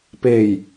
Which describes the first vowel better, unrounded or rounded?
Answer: unrounded